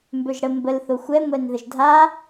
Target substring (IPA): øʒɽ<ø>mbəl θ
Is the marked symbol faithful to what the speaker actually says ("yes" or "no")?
no